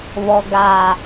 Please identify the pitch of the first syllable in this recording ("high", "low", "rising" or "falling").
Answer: low